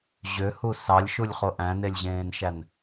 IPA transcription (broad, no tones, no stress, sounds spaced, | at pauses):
ʑ ø h u s ɑ lʲ ʃ u lʲ χ o ʔ æ̃ n e lʲ ʑ ẽː n ʃ æ n